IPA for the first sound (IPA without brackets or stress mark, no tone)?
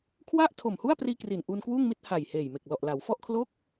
kʰ